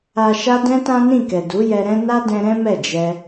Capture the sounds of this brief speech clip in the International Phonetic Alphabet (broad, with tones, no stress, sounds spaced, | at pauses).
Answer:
a˨ ʃ a˧ d ɛ̃˦ t ã˦ n ĩ˦˨ k ɛ˨ d u˨˦ j ɛ˧ ɾ ɛ̃˦ n a˦ d ɛ̃˧ ɾ ɛ̃˦ m ɛ˦˨ d͡ʒ ɛ˧